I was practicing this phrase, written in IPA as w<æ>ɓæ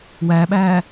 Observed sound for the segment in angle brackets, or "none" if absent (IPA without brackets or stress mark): æ